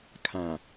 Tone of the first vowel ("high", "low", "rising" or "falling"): low